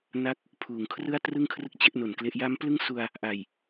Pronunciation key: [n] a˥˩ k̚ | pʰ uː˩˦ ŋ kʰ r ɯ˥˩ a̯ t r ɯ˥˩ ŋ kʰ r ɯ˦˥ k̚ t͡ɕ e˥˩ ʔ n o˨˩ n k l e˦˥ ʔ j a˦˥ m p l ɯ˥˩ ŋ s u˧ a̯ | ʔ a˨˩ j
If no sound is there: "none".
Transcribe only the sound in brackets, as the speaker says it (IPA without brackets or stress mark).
n